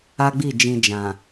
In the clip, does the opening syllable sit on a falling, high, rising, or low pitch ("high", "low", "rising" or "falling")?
high